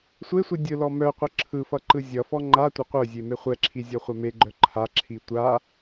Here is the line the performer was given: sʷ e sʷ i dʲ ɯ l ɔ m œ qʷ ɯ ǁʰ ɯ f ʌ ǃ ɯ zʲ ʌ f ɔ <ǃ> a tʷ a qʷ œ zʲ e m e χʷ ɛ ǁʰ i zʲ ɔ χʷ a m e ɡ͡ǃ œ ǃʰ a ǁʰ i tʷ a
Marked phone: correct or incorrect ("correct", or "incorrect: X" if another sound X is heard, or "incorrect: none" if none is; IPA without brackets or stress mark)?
incorrect: ŋ͡ǃ